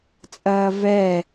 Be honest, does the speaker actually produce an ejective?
yes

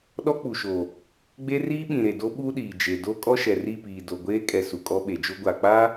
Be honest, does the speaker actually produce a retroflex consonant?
no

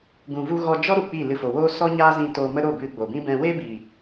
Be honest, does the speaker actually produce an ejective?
no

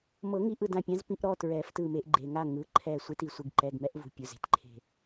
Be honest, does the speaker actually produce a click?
yes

